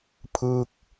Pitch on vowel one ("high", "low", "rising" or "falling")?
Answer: falling